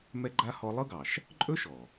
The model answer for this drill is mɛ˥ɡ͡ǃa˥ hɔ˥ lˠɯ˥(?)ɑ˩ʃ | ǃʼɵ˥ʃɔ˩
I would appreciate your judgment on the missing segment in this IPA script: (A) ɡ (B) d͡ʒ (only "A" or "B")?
A